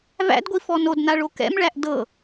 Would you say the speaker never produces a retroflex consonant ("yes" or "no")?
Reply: no